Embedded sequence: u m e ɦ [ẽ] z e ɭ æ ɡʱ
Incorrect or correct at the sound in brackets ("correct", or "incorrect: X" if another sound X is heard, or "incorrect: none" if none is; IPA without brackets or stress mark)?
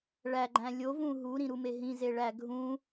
incorrect: ĩ